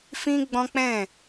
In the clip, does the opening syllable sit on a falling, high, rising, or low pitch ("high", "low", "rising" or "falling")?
high